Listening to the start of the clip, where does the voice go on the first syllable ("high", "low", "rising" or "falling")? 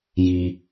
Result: high